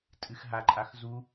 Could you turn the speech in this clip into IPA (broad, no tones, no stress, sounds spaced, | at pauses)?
tʼ ɨ x ɦ a ǃʼ a x z u